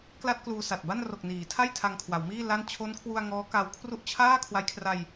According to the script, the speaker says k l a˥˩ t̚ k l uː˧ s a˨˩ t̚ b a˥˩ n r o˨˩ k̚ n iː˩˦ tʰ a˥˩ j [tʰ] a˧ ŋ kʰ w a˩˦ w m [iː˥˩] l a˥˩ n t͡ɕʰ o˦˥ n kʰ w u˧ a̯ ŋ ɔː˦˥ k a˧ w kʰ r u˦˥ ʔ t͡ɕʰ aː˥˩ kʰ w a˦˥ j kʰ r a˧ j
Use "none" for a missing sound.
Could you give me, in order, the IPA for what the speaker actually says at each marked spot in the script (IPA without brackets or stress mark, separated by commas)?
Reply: tʰ, iː˥˩